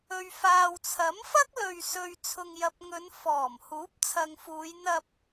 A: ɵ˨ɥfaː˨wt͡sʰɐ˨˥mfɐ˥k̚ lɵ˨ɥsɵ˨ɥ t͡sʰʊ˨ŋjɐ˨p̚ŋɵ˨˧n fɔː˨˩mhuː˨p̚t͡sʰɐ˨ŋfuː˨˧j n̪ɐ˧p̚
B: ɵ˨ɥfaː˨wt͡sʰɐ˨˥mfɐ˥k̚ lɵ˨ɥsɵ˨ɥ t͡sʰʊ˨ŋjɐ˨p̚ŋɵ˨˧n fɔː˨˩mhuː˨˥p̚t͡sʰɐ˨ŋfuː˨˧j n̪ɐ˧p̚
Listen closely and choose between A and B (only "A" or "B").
B